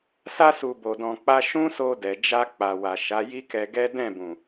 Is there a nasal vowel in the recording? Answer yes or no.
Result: yes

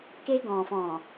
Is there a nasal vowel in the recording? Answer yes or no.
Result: yes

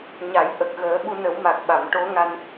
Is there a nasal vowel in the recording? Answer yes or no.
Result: no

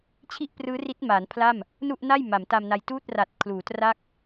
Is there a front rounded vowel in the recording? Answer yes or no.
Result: no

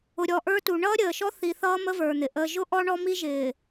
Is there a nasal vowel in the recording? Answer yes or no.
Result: no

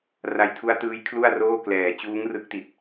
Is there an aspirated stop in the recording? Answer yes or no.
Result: yes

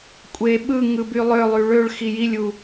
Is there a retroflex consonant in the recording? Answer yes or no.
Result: yes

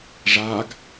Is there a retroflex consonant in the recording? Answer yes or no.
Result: yes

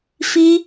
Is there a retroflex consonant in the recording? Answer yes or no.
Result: no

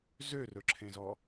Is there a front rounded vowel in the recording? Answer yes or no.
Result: yes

